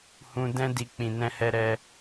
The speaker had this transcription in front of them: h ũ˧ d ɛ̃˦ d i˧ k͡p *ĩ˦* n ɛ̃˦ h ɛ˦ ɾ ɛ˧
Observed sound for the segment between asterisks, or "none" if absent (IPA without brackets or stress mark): ĩ˧